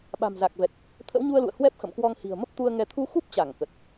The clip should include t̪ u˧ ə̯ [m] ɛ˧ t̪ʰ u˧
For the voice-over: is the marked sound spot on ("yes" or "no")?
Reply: no